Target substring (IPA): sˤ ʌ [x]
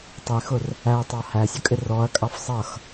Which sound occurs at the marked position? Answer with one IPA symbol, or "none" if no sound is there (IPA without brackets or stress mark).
x